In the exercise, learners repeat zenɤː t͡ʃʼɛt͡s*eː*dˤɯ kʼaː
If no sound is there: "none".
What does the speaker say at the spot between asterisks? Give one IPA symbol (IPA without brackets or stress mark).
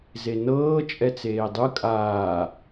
eː